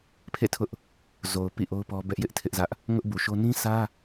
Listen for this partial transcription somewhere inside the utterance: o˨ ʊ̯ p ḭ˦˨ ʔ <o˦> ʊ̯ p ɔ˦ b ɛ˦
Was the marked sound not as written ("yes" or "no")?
no